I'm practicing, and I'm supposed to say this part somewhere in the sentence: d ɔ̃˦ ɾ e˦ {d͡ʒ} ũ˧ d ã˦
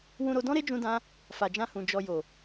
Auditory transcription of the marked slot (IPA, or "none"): d͡ʒ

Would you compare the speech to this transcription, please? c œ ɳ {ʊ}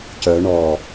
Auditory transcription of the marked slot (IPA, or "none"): ɔ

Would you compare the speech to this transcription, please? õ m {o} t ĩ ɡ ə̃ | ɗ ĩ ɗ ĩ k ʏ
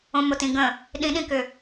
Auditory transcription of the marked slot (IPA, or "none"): o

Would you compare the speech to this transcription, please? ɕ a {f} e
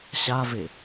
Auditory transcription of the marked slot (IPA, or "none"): v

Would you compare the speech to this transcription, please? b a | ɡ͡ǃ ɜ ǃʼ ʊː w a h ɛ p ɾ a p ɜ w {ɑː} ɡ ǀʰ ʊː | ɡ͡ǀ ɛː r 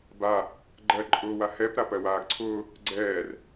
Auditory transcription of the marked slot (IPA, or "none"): aː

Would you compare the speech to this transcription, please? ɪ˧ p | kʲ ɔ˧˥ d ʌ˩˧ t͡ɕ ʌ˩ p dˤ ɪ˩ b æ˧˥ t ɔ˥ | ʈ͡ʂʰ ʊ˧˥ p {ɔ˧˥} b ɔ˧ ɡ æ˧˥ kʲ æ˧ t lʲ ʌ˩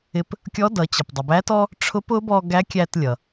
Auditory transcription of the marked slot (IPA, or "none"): ʊ˧˥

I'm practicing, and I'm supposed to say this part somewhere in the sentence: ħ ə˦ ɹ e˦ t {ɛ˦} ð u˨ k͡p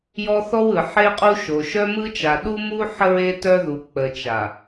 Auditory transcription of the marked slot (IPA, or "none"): œ˦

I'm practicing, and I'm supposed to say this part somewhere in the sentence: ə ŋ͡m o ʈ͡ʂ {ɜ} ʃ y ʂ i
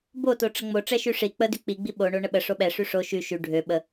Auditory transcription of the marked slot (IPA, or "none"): ɛ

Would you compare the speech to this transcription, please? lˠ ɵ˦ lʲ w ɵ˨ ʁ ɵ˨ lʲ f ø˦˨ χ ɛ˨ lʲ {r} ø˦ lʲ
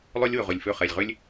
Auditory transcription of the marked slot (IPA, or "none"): ʁ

